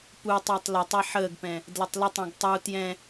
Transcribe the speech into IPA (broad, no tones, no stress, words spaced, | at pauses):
putˤɜtˤ lətˤɛ ħəːɡpɛ̃ | dlətˤlətˤ ɛ̃ɡtˤu tjɛ̃